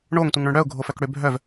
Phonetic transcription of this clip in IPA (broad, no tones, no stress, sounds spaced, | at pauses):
ɳ o ŋ tʷ i ŋ ɳ œ̃ ɳ ɽ œ ʊ̯ ɡʱ o f œ k ɽ ø bʱ œ v